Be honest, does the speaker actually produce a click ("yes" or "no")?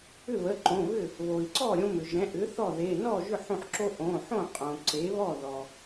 yes